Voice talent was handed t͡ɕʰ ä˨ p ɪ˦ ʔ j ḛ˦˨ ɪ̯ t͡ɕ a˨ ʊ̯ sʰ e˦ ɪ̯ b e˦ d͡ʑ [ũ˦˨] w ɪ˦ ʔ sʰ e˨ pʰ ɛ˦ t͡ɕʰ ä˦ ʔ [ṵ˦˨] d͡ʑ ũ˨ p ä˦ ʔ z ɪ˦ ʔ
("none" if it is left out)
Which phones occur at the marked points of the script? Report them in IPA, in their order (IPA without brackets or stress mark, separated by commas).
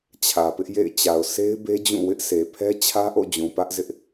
ũ˦˨, o̰˦˨